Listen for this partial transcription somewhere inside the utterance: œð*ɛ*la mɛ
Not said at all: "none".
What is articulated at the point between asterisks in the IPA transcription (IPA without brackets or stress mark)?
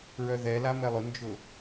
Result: ɛ